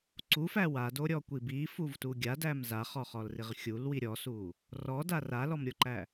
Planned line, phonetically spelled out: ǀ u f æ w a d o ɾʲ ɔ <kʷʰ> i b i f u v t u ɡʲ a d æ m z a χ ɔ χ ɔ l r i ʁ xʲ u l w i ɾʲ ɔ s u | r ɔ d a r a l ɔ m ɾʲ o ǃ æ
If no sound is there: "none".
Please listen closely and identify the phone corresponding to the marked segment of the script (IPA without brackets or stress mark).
kʷ